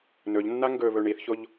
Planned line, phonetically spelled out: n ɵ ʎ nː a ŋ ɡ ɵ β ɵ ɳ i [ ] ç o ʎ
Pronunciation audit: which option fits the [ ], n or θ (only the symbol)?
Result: θ